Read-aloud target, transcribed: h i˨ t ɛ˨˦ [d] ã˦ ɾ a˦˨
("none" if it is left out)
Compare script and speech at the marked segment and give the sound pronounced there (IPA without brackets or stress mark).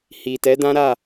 d